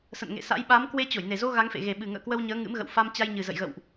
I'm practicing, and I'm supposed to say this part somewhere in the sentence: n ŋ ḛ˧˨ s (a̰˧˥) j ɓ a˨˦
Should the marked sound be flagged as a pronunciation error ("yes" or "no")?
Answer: no